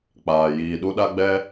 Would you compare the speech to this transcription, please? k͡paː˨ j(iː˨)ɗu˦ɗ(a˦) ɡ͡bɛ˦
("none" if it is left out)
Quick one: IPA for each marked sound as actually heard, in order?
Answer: iː˨, a˦

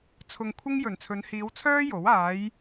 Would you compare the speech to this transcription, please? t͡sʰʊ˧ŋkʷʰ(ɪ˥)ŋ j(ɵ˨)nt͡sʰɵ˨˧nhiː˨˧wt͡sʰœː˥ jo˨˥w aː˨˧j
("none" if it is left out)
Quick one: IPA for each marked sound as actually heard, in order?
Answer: ɪ˥, ɵ˨˩

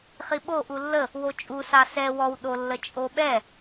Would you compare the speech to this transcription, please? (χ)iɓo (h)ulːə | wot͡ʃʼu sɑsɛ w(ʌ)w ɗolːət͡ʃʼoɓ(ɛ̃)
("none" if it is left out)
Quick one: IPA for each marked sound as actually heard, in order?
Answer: χ, ʔ, ɔ, ɛ

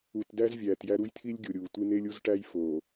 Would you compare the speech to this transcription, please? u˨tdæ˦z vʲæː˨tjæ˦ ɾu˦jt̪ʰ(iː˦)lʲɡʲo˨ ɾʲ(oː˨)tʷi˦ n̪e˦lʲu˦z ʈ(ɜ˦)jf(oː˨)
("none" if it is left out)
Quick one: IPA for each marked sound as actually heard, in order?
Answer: i˦, uː˨, æ˦, oː˨

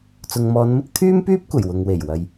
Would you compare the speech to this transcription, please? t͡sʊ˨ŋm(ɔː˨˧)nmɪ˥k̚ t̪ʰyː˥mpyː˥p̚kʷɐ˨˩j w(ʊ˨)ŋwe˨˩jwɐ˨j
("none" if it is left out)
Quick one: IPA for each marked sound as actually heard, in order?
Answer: ɔː˨˧, ʊ˨

